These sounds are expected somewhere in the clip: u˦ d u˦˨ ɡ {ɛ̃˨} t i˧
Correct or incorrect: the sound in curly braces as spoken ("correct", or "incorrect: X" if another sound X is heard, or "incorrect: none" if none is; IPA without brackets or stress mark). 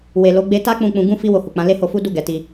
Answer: incorrect: ɛ˨